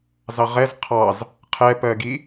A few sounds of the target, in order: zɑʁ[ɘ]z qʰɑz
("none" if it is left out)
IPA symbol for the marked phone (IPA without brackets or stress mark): ɛ